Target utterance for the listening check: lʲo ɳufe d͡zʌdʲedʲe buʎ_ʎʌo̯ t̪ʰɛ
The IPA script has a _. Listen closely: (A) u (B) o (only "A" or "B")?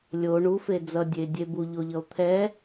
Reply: B